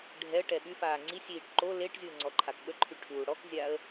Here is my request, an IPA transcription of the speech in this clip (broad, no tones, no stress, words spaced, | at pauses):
ɖʱɛə̯ ʈɛɓyfaː ŋ͡ǀisʲiːʈ ǃo leʈzʲuə̯ ŋ͡ǀɔǃʰakɓəǃʰy ʈʰuːɽɔkzʲaə̯